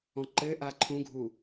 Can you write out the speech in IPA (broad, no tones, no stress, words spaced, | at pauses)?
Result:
ɔ̃ǃɘʔa ǃʰũɡʱu